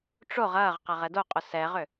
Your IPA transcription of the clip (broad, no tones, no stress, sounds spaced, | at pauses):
ʈ͡ʂ o ʁ ɐː ʁ q ɐ ʁ ɛ d o qʼ ʊ s ɛ ʁ ʏ